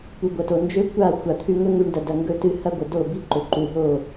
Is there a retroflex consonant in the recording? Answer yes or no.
yes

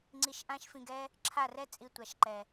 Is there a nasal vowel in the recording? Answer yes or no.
yes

